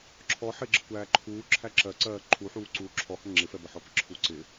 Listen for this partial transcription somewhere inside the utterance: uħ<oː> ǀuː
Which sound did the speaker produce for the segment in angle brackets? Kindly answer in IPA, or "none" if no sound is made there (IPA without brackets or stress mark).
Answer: uː